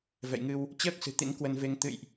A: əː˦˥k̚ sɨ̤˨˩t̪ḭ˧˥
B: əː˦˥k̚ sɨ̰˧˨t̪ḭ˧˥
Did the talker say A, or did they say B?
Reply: A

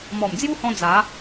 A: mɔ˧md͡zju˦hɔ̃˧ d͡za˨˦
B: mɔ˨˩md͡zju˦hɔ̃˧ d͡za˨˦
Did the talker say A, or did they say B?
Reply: B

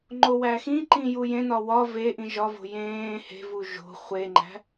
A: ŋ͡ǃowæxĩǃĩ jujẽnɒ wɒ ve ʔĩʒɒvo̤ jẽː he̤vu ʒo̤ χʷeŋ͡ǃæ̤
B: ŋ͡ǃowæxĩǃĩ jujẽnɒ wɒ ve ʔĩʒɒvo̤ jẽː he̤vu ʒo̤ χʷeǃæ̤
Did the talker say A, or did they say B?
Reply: A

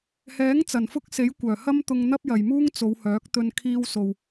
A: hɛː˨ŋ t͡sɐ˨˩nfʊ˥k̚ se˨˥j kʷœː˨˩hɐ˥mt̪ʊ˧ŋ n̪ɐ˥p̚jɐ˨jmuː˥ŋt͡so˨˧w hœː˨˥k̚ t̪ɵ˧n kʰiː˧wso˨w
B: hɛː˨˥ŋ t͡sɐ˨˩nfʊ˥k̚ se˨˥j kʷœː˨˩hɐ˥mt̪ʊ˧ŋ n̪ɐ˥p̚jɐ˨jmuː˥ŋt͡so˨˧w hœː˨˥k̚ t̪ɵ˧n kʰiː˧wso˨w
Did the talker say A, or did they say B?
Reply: B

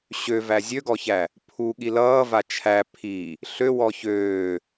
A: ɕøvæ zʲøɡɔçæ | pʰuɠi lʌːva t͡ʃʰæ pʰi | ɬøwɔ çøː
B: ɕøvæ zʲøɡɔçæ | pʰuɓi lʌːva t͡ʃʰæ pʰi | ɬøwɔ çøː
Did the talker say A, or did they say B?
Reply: A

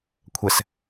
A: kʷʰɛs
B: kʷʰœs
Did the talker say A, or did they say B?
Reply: A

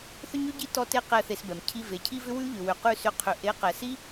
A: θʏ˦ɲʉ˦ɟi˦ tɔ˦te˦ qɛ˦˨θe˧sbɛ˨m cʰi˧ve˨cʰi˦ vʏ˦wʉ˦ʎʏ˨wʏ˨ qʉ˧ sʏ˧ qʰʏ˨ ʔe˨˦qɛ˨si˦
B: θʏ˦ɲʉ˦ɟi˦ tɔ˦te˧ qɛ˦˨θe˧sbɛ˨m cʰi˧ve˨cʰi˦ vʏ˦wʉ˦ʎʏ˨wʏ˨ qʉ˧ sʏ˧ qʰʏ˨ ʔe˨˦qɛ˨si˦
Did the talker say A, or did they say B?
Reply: A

